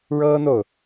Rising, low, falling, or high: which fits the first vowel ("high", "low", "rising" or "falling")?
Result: high